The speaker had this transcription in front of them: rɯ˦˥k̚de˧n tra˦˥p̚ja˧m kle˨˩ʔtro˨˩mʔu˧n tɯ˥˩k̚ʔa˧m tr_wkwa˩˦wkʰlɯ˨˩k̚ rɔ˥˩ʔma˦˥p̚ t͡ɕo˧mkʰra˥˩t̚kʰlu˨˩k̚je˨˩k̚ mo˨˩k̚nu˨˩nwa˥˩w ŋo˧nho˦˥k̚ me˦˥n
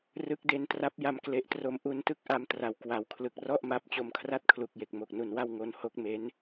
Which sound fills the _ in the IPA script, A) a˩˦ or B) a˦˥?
A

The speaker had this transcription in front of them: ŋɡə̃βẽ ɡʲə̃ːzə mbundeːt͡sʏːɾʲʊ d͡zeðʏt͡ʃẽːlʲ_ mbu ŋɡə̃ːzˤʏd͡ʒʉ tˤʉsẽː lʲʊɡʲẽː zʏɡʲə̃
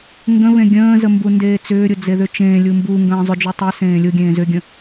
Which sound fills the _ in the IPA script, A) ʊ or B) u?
B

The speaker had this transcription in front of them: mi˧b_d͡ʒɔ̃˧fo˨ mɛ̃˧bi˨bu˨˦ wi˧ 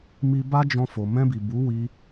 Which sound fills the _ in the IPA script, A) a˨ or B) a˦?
B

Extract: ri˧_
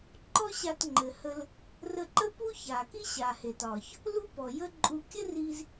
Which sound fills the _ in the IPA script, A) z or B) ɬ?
A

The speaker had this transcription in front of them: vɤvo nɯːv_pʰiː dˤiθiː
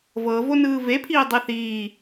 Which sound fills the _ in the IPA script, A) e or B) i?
A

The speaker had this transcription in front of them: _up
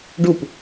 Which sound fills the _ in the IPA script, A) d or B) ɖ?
B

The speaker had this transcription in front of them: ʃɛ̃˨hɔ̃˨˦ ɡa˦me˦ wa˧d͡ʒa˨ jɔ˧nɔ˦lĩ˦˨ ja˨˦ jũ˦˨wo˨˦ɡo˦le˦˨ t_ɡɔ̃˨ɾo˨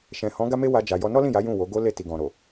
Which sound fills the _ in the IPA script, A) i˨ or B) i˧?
A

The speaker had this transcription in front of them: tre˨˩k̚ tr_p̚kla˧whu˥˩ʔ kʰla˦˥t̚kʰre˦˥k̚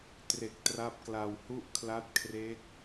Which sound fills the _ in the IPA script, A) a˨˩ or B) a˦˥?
B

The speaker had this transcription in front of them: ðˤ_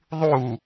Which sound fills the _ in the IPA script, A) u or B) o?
A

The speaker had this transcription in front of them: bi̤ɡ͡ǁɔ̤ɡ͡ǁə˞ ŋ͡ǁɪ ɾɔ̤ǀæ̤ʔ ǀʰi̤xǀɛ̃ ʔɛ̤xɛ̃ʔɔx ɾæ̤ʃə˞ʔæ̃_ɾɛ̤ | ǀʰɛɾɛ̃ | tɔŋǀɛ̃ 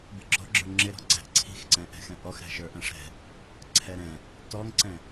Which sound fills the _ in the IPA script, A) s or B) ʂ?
B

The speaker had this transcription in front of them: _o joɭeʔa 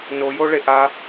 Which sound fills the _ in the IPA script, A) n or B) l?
A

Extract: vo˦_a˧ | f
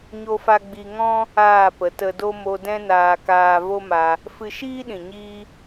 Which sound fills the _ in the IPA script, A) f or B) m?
B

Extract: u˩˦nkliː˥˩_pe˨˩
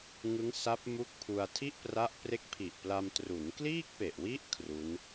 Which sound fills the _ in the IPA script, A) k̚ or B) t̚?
A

